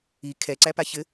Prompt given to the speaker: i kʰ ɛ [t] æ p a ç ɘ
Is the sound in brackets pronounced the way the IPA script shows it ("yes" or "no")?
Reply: no